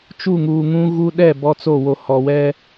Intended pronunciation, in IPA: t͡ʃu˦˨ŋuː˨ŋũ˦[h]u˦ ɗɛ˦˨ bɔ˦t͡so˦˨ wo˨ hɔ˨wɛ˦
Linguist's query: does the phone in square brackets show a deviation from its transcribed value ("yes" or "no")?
yes